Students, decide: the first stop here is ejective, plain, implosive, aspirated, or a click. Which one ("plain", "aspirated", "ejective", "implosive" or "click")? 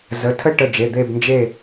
aspirated